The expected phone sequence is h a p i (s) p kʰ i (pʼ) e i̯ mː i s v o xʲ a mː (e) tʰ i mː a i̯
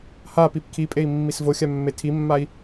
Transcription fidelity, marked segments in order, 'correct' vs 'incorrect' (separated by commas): incorrect, correct, correct